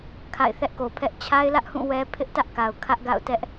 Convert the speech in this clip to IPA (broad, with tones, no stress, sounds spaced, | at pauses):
kʰ a̰˦˨ ɪ̯ θ ɛ˦ ʔ k o˨ pʰ ɛ˦ ʔ t͡ɕʰ a˦ ɪ̯ l ä˦ ʔ h ũ˦˨ w ɛ˦ pʰ ɪ˦ ʔ t ä˦ ʔ k a˨ ʊ̯ kʰ ä˦ ʔ ɡ a̰˦˨ ʊ̯ t ɛ˦ ʔ